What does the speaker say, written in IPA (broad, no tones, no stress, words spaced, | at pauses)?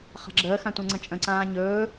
χa̤ɡ͡ǁəːxã tʷɛ̃ŋ͡ǀə̃t͡ʃʼə̃ǀãː ɲɵː